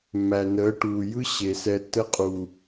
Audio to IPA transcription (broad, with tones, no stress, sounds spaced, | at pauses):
mː æ˨ n əː˨˦ ʈ uː˨ j ɯ˦ ɕ e˨ s ɛ˧ tː ə˧ qʼ u˨